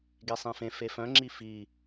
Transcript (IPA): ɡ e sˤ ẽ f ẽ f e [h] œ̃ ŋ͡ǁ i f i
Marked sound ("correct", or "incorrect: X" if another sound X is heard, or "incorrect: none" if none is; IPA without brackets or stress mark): incorrect: f